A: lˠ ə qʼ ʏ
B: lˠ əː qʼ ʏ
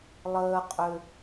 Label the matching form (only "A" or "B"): B